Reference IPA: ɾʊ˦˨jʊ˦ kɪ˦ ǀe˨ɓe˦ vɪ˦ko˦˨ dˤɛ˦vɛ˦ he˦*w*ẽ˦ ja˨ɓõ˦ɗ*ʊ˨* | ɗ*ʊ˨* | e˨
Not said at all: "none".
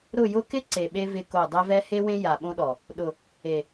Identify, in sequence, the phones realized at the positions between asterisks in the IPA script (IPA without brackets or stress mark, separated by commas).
w, ɔ˨, ʊ˨